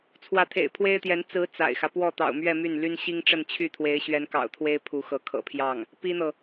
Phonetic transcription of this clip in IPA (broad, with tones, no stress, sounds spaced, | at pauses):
t͡sʰ w ä˧˥ t̪ʰ ḛ˨˩ ɪ̯ pʰ w e˥ ɪ̯ t̪ j ɛ˧˥ n t͡s ɹ̩˧˥ t͡s a̰˨˩ ɪ̯ x ä˦ p w ɔ˥˩ t̪ ɑ̰˨˩ ʊ̯ m ɥ ɛ˥˧ m y˥˩ n l y˥ n ɕ i˥ ŋ ʈ͡ʂ ə˥˧ n t͡ɕʰ y˥˩ t̪ʰ w e˧˥ ɪ̯ ɕ ɥ ɛ˧˥ n k ɑ̰˨˩ ʊ̯ t̪ʰ w e˥ ɪ̯ pʰ u˧˥ x ɤ˧˥ kʰ ɤ̰˨˩ pʰ j ɑ˥˩ ŋ | p i˥ n̪ ɤ˨